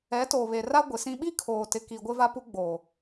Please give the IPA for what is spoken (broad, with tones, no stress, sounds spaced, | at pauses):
ɛ˨˦ t o˨ β e˨ r a˦ ɡʷ ɪ˨ s ĩ˦ ɓ i˦ kʰ oː˨ t ɪ˨ k i˨ ɡʷ ɪ˦ v a˦ p u˦ ɡ͡b o˨